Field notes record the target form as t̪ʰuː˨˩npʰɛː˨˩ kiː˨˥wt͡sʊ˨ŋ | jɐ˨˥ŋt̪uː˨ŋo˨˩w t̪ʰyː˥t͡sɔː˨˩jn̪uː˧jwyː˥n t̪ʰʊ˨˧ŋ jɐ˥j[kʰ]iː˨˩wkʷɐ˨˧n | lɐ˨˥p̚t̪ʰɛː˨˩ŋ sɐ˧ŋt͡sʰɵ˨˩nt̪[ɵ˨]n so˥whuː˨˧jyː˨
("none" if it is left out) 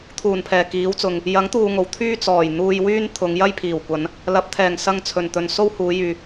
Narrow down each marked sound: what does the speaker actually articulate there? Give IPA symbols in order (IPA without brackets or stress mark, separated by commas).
pʰ, ɵ˨